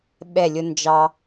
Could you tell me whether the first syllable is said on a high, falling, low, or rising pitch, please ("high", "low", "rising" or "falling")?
falling